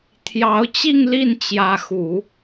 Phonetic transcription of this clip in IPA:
t̪ʰ j ɑ˧˥ ʊ̯ t͡ɕ i˥˧ ŋ l i˥˩ n t͡ɕ j ä˧˥ x u˨˩˦

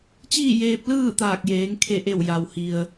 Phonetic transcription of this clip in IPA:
t͡ɕ iː˥˨ j eː˧ p̚ l ɯː˥˨ t̪ aː˧˩ k̚ j eː˩˧ ŋ kʰ e˧˩ ʔ e˧˩ w j a˩ w h i˩ ə̯

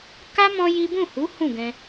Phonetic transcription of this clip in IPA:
k a˦ m ɔ̃˦ j i˦ b ũ˦˨ h u˨˦ h ũ˦˨ ɡ ɛ̃˧

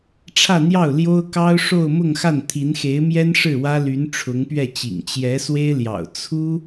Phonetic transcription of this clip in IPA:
ʈ͡ʂʰ ä˥˧ n̪ j ɑ˥˩ ʊ̯ l j o˥ ʊ̯ k ɑ˥ ʊ̯ ʂ o˥˧ ʊ̯ m ʊ˥˧ ŋ x a˥˩ n t̪ʰ i˧˥ n x e˧˥ ɪ̯ m j ɛ˥ n ʂ ɻ̩˥˩ w ä˥ l y˧˥ n ʈ͡ʂʰ ʊ˧˥ ŋ p ɥ ɛ˥˩ t͡ɕ ḭ˨˩ ŋ t͡ɕ j ɛ˧˥ s w e˥ ɪ̯ l j ɑ̰˨˩ ʊ̯ t͡sʰ u˥

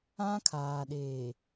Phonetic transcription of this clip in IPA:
ã˦ kʰ aː˨ ɗ eː˨

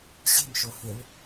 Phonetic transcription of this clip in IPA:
ɕ e̤ m ʃ o h e ɭ

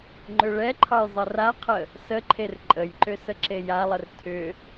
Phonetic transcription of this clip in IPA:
ŋ͡ǃ ʏ ɭ ɛ ǃʰ ɑ j zˤ ə r a qʰ ə | s ə ǃʰ e r ǃʼ ə j ǃ ʏ s ə ǁ e j a lˠ ə r tʰ ʏ

